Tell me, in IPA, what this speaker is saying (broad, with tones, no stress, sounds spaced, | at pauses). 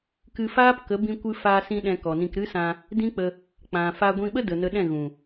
k ɨ˧ f aː˦ p k ə˨˦ b ĩ˧ kʷ ɨ˧ f a˧ s ĩ˧ ɗ ɛ̃˧ k ɔ˨ n ĩ˧ k ɾ ɨ˦ s ã˧ | d ĩ˦ k͡p ə˧ | k͡p ã˨ f a˧ ɡʷ ĩ˧ ɓ ə˦ d ə˨ n ə˧ ɗ ɛ̃˦˨ ɣ ũ˨